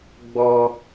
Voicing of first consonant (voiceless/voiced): voiced